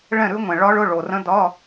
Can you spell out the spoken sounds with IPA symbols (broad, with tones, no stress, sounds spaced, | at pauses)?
ɭ ɛ̃˥˨ ɾ ʉ˦˥ ŋʷ ɛ̃˨ ɭ ɒ˦˥ ɭ ʊ˧˥˧ ɭ o˨ r ə̃˦˥ d ɒ˧˥˧